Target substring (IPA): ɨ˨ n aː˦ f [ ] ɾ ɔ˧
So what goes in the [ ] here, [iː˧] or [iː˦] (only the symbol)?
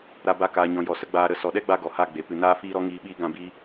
iː˧